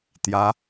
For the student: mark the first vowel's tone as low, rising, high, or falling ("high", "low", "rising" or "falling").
rising